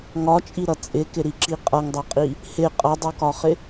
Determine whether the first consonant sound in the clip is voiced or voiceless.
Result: voiced